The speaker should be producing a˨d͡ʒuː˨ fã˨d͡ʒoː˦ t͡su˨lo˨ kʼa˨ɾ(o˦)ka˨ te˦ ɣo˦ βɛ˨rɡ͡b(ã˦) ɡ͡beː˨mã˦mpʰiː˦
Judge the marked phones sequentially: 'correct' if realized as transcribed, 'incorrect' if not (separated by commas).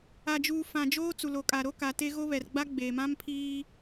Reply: correct, incorrect